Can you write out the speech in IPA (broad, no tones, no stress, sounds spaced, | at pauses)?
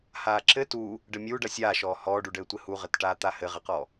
h aː ǁ ɘ t u | ɖ ɘ mʲ uː ɖ ɐ sʲ aː ʃ ɔː h ɔː ɖ u ɖ ɘː tʷ ɘ h u ʁ ɘ t ʈ aː t̪ a h ɘ ʁ ɘ q ɔ